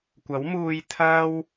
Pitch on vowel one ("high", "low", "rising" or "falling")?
rising